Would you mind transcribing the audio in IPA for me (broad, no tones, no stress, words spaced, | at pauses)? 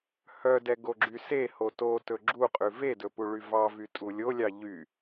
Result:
hœdɛ ɡoɡ͡ǁyseho totɵ ɡ͡ǁuqʼʉ vedɵ puɭyvɑvy tʼulʲolʲɑ ʎy